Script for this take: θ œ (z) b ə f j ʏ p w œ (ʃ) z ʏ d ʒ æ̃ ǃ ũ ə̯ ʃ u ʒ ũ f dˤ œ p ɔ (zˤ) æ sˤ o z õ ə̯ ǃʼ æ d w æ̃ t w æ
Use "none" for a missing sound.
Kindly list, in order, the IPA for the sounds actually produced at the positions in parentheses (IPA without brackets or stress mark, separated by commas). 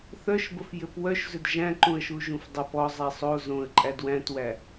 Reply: ʃ, ʃ, zˤ